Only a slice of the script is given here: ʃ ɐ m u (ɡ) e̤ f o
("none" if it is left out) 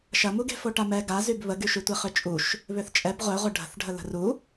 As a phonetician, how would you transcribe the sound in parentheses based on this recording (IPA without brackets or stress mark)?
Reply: ɡ